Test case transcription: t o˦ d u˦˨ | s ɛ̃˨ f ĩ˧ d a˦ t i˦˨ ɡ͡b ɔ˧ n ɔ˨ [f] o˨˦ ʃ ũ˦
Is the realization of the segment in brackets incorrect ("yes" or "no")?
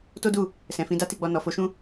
no